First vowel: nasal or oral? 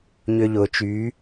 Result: oral